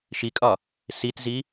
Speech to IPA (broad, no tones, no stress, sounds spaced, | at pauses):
ʃ i kʼ ɒ | s i t z i